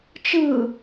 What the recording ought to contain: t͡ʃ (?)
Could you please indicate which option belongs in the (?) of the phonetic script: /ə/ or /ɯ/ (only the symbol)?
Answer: ɯ